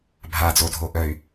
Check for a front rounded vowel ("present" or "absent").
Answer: present